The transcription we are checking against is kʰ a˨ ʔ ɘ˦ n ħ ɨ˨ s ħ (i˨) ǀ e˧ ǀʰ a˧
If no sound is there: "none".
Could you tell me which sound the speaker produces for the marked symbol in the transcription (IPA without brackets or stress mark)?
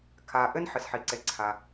i˨